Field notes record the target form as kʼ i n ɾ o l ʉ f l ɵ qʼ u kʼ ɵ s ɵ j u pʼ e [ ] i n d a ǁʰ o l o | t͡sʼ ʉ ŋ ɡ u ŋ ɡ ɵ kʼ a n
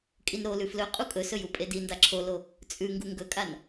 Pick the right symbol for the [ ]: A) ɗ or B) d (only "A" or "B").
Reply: B